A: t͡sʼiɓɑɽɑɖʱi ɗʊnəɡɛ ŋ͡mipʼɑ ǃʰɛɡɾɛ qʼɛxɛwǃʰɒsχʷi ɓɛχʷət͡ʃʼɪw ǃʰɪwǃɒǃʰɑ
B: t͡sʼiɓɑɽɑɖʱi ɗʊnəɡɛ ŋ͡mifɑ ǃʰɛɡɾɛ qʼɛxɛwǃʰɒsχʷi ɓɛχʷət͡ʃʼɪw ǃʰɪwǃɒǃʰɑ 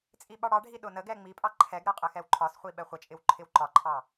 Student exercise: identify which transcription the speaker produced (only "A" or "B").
A